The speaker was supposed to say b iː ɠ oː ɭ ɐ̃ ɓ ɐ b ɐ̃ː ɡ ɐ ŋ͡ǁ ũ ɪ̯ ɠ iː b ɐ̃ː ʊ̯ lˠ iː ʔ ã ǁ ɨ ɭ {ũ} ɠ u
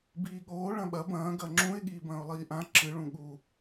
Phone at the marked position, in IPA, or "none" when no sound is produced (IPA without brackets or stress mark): ũ